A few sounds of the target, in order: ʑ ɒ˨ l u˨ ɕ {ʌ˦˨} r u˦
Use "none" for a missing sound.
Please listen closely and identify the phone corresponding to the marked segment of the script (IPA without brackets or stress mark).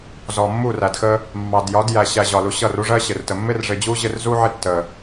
ʌ˦˨